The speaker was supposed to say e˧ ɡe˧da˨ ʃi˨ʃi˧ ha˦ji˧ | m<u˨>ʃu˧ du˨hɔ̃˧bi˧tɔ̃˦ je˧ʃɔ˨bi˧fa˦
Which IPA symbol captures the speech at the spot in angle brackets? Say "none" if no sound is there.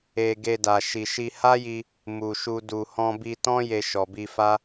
u˨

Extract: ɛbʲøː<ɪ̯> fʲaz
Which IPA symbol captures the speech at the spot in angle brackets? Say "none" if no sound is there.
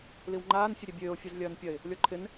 ʊ̯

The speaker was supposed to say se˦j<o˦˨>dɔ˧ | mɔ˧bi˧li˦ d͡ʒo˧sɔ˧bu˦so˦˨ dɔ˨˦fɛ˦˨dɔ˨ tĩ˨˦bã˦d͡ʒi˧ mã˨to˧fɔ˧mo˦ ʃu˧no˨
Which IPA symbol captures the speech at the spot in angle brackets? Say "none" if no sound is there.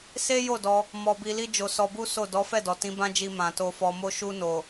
o˦˨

